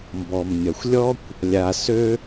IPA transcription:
m b ɔ˩ m nʲ ʌ˩ xʷ lʲ ɔ˥ kʷ | lʲ a˨ s ø˥

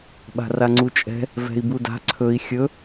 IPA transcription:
ɓ a̤ r a ŋ͡ǀ u t͡ʃʼ ɛ̤ | v ɛ̤ i̯ b u d a̤ ǀʰ ɵ i̯ xʲ ɵ

